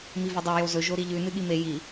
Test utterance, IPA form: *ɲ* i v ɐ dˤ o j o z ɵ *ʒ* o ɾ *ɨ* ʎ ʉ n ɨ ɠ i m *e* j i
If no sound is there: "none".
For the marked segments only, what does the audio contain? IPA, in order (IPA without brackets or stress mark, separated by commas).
m, ʒ, i, e